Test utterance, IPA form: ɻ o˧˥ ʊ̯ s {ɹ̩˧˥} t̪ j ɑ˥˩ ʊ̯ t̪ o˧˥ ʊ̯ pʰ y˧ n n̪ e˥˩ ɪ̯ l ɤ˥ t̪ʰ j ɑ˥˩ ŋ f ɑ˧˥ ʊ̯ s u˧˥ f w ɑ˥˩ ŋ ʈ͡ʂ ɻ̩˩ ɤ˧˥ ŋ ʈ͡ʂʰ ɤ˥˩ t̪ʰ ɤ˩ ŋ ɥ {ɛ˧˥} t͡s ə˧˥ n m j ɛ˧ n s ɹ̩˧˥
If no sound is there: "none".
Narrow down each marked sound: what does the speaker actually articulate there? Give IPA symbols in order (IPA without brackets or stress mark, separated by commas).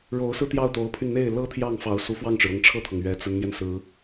ɹ̩˥˧, ɛ˧˥